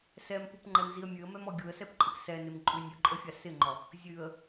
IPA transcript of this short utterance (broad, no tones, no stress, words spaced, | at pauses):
sɛmpupŋ͡ǃɛmziə̯ mʲʉə̯mɛmɔ ɡʲuə̯sɛpǃʼɪp sɛnɪmǃʼʉ nʲʉǃʼəfʲa sɪŋ͡ǃɔ | zʲʉə̯